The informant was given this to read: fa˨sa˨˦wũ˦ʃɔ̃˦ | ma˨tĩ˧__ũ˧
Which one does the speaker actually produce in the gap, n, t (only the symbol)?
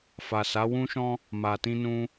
n